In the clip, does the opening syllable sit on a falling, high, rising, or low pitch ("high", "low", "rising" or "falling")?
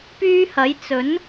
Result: high